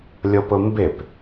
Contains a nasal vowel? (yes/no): no